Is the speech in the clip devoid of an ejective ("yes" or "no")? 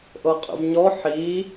no